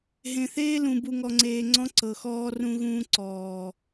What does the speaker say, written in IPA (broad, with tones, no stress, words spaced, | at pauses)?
ɦẽ˨θeː˦lũ˨ bu˨ŋɔ˨ŋ͡ǀeː˨ ŋ͡ǀɔ̃˦ǀɤ˨ xɔː˦rũ˦ɣũː˦ ǀɔː˨